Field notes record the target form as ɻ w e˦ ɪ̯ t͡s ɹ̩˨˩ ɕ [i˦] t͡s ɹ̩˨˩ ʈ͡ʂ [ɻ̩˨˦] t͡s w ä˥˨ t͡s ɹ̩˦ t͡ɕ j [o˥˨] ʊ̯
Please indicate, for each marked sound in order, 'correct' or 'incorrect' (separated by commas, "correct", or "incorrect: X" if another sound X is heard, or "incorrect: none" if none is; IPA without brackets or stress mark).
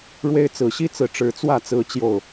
correct, correct, correct